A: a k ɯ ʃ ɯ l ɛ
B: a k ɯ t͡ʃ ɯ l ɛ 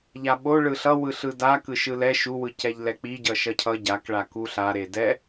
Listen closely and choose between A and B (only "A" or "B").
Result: A